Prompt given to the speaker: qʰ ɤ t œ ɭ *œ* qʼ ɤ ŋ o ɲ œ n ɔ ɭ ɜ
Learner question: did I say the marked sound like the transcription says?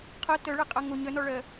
no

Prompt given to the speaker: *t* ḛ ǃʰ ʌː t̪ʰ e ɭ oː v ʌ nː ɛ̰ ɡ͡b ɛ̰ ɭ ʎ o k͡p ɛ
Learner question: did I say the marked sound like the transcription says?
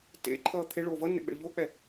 yes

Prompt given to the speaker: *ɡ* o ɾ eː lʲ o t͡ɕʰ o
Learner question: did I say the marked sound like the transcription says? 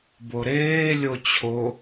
no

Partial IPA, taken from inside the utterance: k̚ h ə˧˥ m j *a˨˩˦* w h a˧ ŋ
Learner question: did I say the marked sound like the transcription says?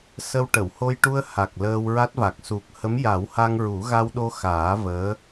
yes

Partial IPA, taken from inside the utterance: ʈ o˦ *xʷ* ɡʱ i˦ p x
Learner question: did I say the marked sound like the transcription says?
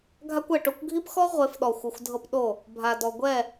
no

